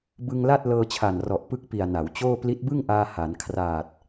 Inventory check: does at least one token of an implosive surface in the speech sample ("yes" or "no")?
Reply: no